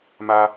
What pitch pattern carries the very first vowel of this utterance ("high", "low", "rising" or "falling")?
high